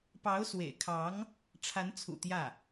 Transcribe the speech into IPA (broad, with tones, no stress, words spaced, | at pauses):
pɑ˧˥ʊ̯ swḛ˨˩ɪ̯kʰɑ˧˥ŋ | ʈ͡ʂʰa˧˥nt͡sʰṵ˨˩ t̪jä˥˩